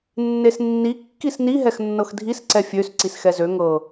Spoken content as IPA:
nː e s nː i kː i s n i ɦ ɛ x nː ɤ x dʱ i s ǀ ɛ fʲ ø s ǀ i s x ɛ z ø ŋ ɤ

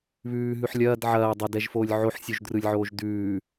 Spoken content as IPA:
β ʉː ɦ ʉ ħ lʲ ɐː d ʕ ɐː dˤ ɐ d ɛ ʒ f oː lʲ ʕ o ħ sʲ u ʒ d r ɯ lʲ ʕ oː ʒ d ʉː

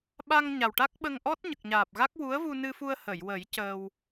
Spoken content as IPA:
ɓ a˧ ŋ ɲ a˨˩ w ʈ a˦˥ k̚ ɓ ə˧ ŋ ʔ ɔ˦˥ t̚ ɲ ə˨˩ k̚ ɲ aː˨˩ p̚ ɣ a˦˥ k̚ w u˧˥ ə̯ v u˧ n ɨ˧ f u˧ ə̯ h ə˨˩˨ j w ə˨˩˦ j c əː˧ w

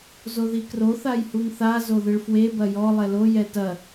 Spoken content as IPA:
z o ð i k r o θ a j h u ŋ θ a z o ð ɨ ɭ f w e b ɐ j ɔ lˠ ɛ l o j ɛ t ɐ

